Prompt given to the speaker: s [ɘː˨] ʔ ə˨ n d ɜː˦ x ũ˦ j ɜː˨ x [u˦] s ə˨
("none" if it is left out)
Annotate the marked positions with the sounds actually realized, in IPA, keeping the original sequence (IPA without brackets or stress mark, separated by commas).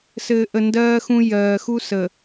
ɘː˨, u˦